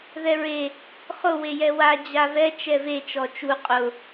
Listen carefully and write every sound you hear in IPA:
ð ɛ ɹ e | χ ʊ w e j ɛ w a d͡ʑ a v ɛ t͡ʃ ɛ v e t͡ʃ ɔ t͡ʃ u qʼ ʊ

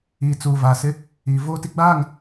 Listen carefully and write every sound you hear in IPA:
iː˨ t͡s uː˨ v a˨ s ɪ˦ | iː˨ v oː˦ t i˦ ɡ͡b aː˦˨ ŋ

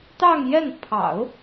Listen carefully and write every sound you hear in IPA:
t̪ ɑ˥˧ ŋ j ɛ˥˩ n pʰ ɑ̰˨˩˦ ʊ̯

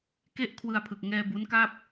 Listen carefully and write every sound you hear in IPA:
k e˥˩ ʔ kʰ w ɯ˧ a̯ pʰ ɯ˨˩ k̚ ŋ ɛː˧ b u˦˥ n k a˥˩ p̚

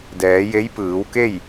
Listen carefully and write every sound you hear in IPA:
d ɛː˩˧ j e˧˥ j p ɯː˩˧ w k e˥˨ j

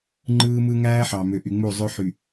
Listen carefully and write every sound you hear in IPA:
ŋ͡ǃ ɯː˦ m ɯ˦ ŋ æː˦ ħ ɑ˨ m ø˨ ʔ y˨ ŋ͡m u˦˨ zˤ ø˦ ħ y˨

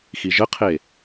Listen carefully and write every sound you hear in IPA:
x i ʒ ə qʰ e

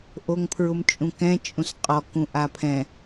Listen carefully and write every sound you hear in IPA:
ʔ o ŋ pʰ ɹ ʊ m t͡ʃʼ ũ k ɛ̃ t͡ʃʼ ũ s qʼ ɔ k ũ ʔ a pʰ ɛ̃

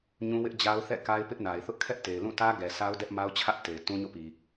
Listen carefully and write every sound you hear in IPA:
ɲ ũ˦ w ɪ˦ ʔ d͡ʑ a˦ ʊ̯ θ ɛ̰˦˨ k a˦ ɪ̯ p ɪ˦ ʔ n a˨ ɪ̯ θ ʊ˦ ʔ kʰ ɛ˦ ʔ t e˨ ɪ̯ l ũ˦˨ t ä˦ ɡ ɛ˨ s a˦ ʊ̯ d ɛ˦ ʔ m a˦ ʊ̯ t͡ɕʰ ä˦ ʔ t e˨ ɪ̯ t ũ˦ ɲ o̰˦˨ p i˨

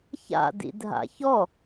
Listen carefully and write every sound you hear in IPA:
ç a̰ d ḭ dʱ a̰ ç ɔ

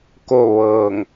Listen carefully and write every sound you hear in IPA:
k o˥˨ ʋ ɤː˧˩ ŋ

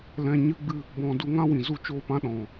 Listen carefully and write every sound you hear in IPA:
l ɛ̃˧ ɲ ɨ˦ ɡ͡b ɨ˦ | b ɔ̃˧ d u˧ ŋ ã˦ w ĩ˨ z u˦ t͡ʃ oː˦ p ã˦ ɗ ɔ̃˨

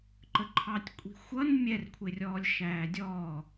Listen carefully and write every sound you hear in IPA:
ǃ ə ǃʰ ɑ tʲ kʷʼ i̤ xʷ ʌ n mʲ ɛ r kʷʰ ɪ rʲ ɔː lʲ ʃ æː dʲ ɔː

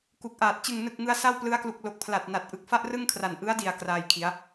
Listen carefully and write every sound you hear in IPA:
k u˨˩ k̚ ʔ aː˨˩ t̚ t͡ɕ ɯ˨˩ ŋ n ɯ˨˩ k̚ ŋ ɯ˧ a̯ s a˥˩ w p l ɯ˦˥ a̯ k l u˨˩ k̚ l o˨˩ k̚ pʰ l a˨˩ t̚ n a˨˩ t̚ ʔ ɯ˨˩ k̚ f a˥˩ ʔ r ɯ˥˩ ŋ kʰ r a˨˩ n ʔ ɯ˦˥ a̯ d i˨˩ a̯ k r aː˧ j kʰ i˩˦ a̯

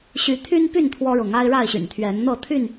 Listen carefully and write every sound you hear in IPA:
ɕ y˨˦ t̪ʰ y˦ n p y˥˨ n t̪ʰ w ɔ˦ ɻ ʊ˨˦ ŋ a˦ ɪ̯ ɻ a˥˨ ɪ̯ ɕ y̰˨˩ n t̪ʰ ɥ ɛ˨˦ n n̪ ɤ˥˨ t̪ʰ y˥˨ n

